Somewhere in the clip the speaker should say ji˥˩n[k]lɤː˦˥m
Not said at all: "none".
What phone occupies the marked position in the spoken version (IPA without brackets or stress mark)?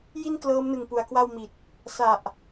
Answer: k